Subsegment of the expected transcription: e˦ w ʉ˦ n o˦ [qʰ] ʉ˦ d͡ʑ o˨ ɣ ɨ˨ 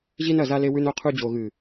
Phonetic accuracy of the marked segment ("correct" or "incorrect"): correct